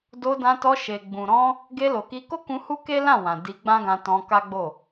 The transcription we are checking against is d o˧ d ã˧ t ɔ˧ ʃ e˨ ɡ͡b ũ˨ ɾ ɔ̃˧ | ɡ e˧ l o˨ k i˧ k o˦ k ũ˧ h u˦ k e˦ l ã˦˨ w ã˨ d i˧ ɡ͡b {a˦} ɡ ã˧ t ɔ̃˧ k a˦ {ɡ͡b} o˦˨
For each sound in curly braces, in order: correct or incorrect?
incorrect, correct

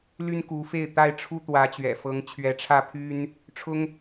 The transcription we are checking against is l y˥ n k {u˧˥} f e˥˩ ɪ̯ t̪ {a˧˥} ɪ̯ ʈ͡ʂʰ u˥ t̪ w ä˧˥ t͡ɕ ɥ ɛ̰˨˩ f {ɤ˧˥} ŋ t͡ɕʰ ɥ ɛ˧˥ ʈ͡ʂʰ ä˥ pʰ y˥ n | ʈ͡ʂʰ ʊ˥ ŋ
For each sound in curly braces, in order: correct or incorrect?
correct, incorrect, correct

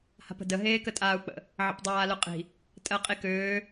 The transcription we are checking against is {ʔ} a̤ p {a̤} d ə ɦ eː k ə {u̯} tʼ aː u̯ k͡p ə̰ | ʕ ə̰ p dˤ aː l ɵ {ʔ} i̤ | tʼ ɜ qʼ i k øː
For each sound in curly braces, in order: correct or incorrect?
incorrect, incorrect, incorrect, incorrect

